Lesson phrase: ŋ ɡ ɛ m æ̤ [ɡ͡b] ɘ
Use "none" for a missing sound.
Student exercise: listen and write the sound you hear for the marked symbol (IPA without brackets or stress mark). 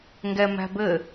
b